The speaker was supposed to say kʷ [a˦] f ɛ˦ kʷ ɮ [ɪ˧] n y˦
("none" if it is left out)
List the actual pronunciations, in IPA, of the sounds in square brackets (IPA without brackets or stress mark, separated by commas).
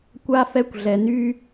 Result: a˦, ɛ˧